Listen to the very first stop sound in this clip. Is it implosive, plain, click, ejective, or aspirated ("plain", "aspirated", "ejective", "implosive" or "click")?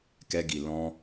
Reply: plain